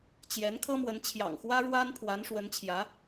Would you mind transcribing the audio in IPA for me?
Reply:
t͡ɕ j ɛ˧˥ n kʰ ɤ˥ m w ə˧˥ n t͡ɕʰ j ɑ̰˨˩ ŋ x w ä˥ ɻ w a˥ n pʰ w a˧˥ n ʂ w ə˧˥ n t͡ɕʰ j ä˧˥

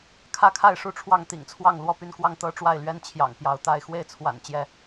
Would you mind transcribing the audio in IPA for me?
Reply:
kʰ ä˥˨ kʰ a˥˨ ɪ̯ ʂ u˥˨ ʈ͡ʂʰ w ɑ˥˨ ŋ t̪ ḭ˨˩ ŋ t͡sʰ w ɑ˥˨ ŋ l w ɔ˥˨ p y˥˨ n k w ɑ˥˨ ŋ t̪ ɤ˦ ʈ͡ʂ w a˥˨ ɪ̯ l ɥ ɛ˦ n t͡ɕʰ j ɑ̰˨˩ ŋ p j ɑ˨˦ ʊ̯ t̪ a˥˨ ɪ̯ x w e˥˨ ɪ̯ t͡sʰ w a̰˨˩ n t͡ɕ j ɛ˥˨

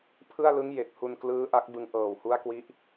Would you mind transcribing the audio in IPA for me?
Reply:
pʰ ɯ˥˩ a̯ l ɯ˦˥ ŋ j e˨˩ k̚ h u˧ n k l ɯː˦˥ ʔ a˦˥ k̚ b ɯ˧ ŋ ʔ ɤː˨˩ w h u˦˥ a̯ k w i˦˥ ʔ

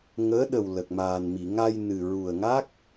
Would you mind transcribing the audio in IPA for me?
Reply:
ŋ əː˧˥ ɗ ə˨˩ w l ə˨˩ k̚ m aː˨˩ n m i˨˩˨ ŋ a˧ j n ɨ˨˩ ɹ u˨˩ ə̯ ŋ a˦˥ k̚

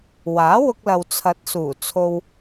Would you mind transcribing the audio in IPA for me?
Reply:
w aː˨˥ w ʊ˧ k̚ l ɐ˨ w t͡sʰ ɐ˨˥ t̚ s uː˨˩ t͡sʰ o˨ w

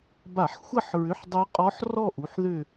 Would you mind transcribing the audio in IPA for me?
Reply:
b a˧˩˧ ħ xʷ ɐ˥˧ ħ ɹ ʏ˧˥˧ ħ dˤ ø˦˥ qʼ ɔ˦˥ ħ r ɔ˥˧ ʔ u˨˦ ħ ð ʏ˥˧

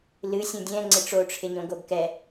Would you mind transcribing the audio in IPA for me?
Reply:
l ɨ sʲ õ dʲ ɛ̃ ŋ͡ǀ ɪ ʈ͡ʂ o ʈ͡ʂʰ ɪ ɲ õ ɡ o ɡ k ɛ

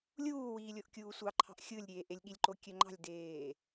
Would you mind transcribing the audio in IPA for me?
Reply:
lʲ uː w iː lʲ o ʔ kʲ uː sʷ ɑ ǃʰ ɑ̤ ʔ xʲ ɯ lʲ ɾʲ eː ʔ e lʲ ɠ i lʲ ǃ o kʲ ø ŋ͡ǃ ɑ̤ lʲ d eː

